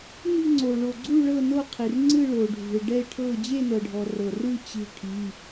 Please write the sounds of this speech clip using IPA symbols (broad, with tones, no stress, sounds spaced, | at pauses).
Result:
n i̤˥˧ ŋ͡ǀ o˨ ɭ o˨ ɡ͡ǀ u˥˧ ɭ ɤ˥˧ n o˥˧ qʰ i˨ r ŋ͡ǀ ɯ˥˧ ɭ o˨ ɖʱ ṳ˨ ɪ̯ ɖ ɛ˥˧ ɪ̯ ʈʰ ɤ˥˧ d͡ʑ e˥˧ n ɤ˨ ɖʱ ɔ˨ r ɤ˨ r ɯ˥˧ t͡ɕ i̤˥˧ ʈʰ i˧˥˧